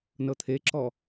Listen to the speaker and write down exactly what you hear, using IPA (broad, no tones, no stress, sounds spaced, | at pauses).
n ɤ t̪ʰ e ǁ ɔ